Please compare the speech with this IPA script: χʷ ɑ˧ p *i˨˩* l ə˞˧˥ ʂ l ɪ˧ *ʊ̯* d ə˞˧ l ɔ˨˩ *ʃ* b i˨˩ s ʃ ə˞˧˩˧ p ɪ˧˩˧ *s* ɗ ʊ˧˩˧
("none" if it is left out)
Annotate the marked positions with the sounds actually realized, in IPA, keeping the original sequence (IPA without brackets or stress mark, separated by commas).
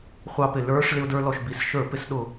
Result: ɪ˨˩, ʊ̯, ʃ, s